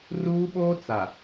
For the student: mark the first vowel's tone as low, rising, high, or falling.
high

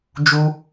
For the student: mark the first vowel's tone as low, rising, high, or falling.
high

